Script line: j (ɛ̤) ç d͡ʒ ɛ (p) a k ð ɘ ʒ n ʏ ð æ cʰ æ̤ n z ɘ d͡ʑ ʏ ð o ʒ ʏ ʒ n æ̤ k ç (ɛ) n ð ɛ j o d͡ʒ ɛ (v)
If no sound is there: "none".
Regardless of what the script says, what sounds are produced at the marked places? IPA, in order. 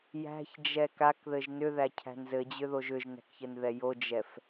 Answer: æ̤, k, ɘ, f

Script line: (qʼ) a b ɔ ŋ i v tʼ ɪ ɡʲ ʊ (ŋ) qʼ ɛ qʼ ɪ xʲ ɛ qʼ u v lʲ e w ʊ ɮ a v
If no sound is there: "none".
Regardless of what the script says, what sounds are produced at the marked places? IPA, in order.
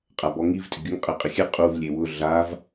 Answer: qʼ, ŋ

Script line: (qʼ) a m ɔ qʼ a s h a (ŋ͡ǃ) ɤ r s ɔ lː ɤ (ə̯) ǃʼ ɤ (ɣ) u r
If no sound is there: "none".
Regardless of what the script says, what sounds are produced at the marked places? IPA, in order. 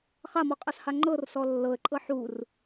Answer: χ, ŋ͡ǃ, ə̯, ħ

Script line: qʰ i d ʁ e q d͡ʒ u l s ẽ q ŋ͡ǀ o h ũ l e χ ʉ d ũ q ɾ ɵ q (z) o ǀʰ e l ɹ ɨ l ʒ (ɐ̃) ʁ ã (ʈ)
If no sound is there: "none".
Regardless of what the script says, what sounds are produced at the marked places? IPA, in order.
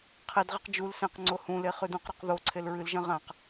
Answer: ð, ɐ̃, q

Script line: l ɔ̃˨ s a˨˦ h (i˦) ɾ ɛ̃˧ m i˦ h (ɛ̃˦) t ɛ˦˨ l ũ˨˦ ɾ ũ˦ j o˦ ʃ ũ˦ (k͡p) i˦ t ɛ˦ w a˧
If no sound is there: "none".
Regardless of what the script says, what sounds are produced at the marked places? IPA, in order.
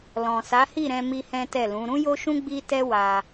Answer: i˦˨, ɛ̃˦, ɡ͡b

